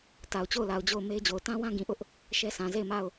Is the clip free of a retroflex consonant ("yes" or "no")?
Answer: yes